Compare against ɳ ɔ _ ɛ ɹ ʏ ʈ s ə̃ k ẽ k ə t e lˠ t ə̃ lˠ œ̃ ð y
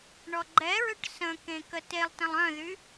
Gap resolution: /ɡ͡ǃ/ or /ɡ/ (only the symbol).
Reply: ɡ͡ǃ